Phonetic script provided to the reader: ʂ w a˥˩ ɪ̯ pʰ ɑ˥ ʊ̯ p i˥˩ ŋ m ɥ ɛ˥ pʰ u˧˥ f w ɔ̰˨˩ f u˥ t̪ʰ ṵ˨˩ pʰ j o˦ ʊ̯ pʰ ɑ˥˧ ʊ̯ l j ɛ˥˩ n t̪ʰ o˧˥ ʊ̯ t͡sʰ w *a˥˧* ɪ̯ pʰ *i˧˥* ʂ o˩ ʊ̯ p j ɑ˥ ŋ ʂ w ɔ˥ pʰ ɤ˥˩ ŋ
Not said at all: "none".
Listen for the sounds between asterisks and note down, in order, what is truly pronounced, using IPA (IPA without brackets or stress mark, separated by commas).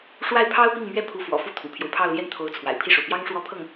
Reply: a̰˨˩, i˥˩